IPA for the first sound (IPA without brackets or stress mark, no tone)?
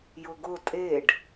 j